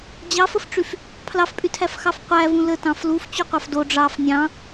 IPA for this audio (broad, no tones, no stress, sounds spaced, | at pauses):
d͡ʑ ɑ f ə f ʈ͡ʂ y f | pʰ l ɑ f pʼ y tʰ æ f x ɑ f qʷ æ v ũ l ə t ɑ̃ f l u f t͡ɕ u qʷ ɑ f d o ɖ͡ʐ ɑ f nʲ ɑ̃